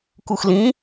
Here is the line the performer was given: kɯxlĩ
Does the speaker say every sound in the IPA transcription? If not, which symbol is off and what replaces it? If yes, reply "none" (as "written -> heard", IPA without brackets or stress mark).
ɯ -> u